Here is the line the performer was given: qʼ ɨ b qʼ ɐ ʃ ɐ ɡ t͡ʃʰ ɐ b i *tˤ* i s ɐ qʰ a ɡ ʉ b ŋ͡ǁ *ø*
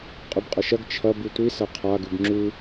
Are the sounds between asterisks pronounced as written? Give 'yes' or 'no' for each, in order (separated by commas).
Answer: no, no